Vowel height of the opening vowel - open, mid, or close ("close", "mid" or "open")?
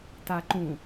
open